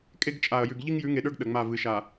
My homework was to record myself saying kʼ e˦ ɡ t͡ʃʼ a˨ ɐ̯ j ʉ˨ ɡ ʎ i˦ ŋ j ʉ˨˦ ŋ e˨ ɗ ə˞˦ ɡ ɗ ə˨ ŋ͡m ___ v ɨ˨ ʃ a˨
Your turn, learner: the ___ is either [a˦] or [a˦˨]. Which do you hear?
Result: a˦˨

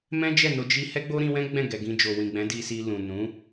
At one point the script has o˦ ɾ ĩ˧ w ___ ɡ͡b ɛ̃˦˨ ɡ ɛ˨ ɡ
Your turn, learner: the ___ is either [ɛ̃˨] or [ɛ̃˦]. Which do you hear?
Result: ɛ̃˦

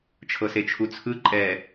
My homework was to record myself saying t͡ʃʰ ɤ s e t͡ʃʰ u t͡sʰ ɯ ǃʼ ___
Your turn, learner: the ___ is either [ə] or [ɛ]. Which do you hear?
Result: ɛ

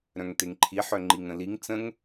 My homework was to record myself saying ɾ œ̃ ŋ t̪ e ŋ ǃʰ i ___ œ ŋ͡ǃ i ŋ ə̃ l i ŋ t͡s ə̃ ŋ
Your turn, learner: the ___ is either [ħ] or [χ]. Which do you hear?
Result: ħ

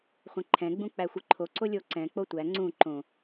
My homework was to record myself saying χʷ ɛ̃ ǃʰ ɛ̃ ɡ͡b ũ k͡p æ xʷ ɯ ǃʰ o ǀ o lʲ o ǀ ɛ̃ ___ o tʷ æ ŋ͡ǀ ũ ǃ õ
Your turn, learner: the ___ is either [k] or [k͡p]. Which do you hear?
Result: k͡p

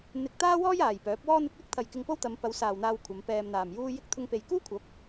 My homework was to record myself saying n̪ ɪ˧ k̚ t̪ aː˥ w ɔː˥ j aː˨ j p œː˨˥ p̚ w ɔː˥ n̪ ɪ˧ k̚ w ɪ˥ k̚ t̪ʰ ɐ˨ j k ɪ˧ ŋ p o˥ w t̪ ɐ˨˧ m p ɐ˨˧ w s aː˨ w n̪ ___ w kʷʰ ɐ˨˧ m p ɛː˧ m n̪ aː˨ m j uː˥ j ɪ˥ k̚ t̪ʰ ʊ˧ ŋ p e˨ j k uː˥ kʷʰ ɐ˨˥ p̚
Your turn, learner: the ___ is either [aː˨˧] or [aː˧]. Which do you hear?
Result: aː˧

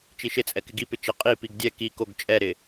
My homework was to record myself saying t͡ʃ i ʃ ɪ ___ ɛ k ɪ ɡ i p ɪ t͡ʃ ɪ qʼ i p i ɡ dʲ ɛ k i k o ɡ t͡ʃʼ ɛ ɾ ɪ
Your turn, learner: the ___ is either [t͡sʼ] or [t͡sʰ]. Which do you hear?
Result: t͡sʼ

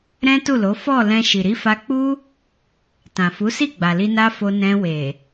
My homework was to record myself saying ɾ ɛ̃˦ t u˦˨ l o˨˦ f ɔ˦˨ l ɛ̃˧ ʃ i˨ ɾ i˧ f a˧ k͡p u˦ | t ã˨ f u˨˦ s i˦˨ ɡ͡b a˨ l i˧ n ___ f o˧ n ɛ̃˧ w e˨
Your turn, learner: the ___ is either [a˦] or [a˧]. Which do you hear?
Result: a˦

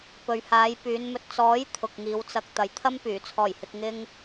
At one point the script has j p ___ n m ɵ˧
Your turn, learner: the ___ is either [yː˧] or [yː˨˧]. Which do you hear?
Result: yː˨˧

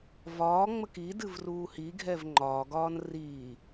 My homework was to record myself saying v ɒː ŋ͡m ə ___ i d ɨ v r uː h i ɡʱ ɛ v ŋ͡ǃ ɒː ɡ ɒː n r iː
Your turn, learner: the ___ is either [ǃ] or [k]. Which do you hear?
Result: k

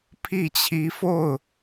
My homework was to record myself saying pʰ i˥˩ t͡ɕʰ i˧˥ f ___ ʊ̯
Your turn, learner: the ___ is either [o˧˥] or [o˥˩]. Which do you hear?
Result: o˥˩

